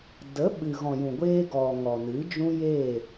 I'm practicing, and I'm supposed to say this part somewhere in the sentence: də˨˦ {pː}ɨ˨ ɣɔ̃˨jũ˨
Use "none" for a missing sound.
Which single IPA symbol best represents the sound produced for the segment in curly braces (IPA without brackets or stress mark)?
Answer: ɓ